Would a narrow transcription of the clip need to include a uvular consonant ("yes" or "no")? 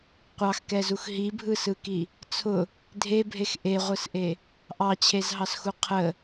yes